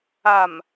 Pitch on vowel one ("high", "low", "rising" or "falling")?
low